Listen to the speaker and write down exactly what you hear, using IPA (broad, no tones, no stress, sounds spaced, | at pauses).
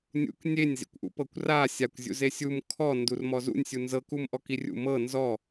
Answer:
nʲ ṵ k nʲ e nʲ z ḭ kʷ ʔ ṵ p ɤ kʷ r a sʲ a kʷ zʲ ṵ z e sʲ u m kʰ ɔ n d u r m ɔ z ṵ nʲ sʲ u n z ɤ k u m ʔ ɔ k i rʲ ṵ m ɤ n z ɔ